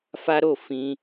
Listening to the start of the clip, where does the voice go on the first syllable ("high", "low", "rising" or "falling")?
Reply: high